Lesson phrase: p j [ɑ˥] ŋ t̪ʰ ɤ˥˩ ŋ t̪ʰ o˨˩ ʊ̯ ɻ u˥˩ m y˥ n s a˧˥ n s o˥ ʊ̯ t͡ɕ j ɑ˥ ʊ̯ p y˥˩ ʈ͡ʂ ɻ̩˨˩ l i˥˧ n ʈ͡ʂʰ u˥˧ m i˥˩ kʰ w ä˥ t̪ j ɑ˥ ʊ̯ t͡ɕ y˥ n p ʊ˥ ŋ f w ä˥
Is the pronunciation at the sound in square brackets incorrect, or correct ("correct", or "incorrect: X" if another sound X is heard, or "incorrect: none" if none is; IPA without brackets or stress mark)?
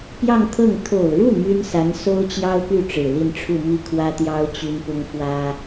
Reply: incorrect: ɑ˥˧